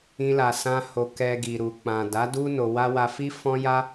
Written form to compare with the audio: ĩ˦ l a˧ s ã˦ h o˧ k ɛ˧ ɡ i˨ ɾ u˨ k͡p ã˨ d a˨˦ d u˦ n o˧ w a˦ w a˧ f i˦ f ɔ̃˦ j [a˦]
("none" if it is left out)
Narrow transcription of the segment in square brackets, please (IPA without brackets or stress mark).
a˦